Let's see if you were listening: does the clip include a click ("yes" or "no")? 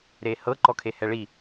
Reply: yes